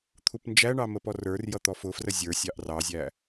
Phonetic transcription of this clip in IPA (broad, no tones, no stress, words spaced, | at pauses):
t̪ʰupnd͡ʒæɳɑ məpɔrə˞rjʌ t̪ɔfʊfrə zʲə˞sʲɑʔ rɑzʲæ